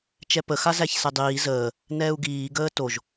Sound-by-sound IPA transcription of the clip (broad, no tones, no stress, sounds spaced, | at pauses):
t͡ʃ ɛ p ə x a z æ ç s ɛ dˤ iː z əː | n ɛː u̯ ɡ iː ɡ əː t o ʒ